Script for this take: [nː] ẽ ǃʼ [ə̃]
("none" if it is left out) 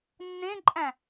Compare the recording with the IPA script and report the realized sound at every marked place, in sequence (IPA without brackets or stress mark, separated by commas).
nː, æ̃